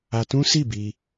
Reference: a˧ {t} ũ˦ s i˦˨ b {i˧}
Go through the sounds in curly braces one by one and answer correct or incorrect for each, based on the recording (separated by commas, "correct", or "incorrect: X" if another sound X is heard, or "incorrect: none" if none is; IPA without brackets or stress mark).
correct, correct